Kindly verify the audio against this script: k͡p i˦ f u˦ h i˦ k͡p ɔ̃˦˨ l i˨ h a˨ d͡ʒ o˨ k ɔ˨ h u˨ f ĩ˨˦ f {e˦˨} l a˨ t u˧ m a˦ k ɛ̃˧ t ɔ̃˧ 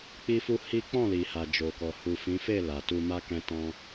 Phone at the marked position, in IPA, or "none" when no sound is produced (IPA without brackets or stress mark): e˦˨